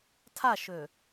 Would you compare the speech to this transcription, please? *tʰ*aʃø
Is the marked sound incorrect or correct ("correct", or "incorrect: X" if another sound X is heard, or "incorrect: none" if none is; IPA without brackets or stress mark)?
correct